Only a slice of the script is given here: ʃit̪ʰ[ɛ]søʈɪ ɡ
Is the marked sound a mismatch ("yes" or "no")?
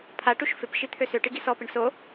yes